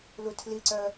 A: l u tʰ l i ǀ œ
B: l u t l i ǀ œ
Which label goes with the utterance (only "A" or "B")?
A